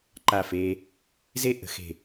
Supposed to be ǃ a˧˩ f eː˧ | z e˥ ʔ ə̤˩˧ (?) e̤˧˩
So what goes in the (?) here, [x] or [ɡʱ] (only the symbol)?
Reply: x